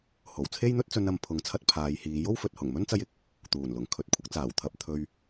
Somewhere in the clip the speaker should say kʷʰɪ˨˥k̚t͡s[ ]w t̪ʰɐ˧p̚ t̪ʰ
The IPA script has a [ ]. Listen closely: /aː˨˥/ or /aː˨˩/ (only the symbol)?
aː˨˩